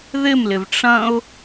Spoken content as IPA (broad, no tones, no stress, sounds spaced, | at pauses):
ð ɪ m l ɪ v ʈ͡ʂ ɐ̃ ʊ̯